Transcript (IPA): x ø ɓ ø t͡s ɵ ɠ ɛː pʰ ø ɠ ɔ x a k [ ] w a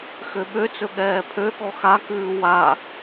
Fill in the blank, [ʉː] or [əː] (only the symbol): ʉː